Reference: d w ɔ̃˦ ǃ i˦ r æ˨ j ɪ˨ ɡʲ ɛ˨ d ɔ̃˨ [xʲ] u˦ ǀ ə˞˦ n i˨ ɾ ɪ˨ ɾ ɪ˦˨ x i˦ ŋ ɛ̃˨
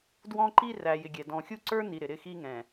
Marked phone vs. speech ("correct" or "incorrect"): correct